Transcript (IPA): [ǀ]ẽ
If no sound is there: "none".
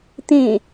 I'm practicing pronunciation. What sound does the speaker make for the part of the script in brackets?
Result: t̪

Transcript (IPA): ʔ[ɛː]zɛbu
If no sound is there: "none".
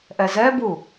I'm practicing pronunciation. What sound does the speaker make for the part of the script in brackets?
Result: ɛ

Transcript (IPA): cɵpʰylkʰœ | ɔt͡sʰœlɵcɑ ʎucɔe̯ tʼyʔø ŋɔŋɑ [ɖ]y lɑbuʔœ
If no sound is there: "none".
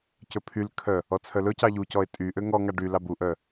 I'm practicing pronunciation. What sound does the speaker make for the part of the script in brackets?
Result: ɖ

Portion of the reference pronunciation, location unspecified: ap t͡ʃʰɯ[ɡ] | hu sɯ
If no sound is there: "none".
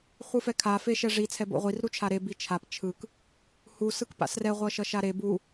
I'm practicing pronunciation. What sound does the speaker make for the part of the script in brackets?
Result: k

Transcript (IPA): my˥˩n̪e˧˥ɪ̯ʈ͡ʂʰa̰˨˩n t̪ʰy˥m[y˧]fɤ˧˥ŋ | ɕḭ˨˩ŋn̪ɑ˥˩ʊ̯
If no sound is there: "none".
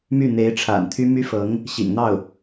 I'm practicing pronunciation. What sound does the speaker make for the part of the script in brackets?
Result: y˥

